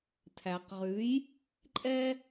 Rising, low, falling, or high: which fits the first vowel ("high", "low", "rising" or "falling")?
low